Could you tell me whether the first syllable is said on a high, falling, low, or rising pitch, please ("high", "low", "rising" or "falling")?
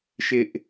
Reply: high